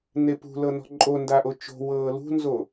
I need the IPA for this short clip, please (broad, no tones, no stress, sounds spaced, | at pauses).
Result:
n e p ṳ l ɤ n ɔ̤ ǃʼ o n d a ʔ o t͡ʃ o̤ w ɤː l ṳ n z o